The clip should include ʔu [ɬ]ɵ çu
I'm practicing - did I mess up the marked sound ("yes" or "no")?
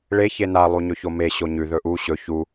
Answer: yes